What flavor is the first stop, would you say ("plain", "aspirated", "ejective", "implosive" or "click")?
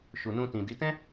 plain